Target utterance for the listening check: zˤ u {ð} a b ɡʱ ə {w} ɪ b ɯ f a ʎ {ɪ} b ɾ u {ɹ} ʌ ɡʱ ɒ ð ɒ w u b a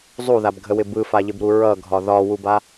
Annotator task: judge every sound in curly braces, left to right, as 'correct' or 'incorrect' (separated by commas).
correct, correct, correct, correct